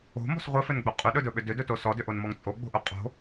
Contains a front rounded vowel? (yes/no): yes